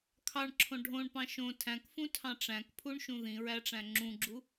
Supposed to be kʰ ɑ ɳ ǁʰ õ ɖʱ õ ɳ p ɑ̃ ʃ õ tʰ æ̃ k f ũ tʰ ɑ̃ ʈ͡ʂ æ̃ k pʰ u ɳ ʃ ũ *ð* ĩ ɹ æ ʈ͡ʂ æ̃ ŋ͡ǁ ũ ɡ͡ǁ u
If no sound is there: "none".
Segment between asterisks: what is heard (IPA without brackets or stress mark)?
ð